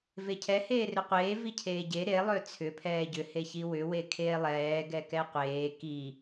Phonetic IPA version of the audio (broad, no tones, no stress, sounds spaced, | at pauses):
v e cʰ ɛ h eː r ʏ qʷ eː v i cʰ eː ɟ e ɾ e lˠ ø t͡sʰ ʏ pʰ ɛː ɟ ʏ h e ç i w ʏ w e kʰ eː lˠ ɛː ɡ ɛ k ɛ qʷ eː k i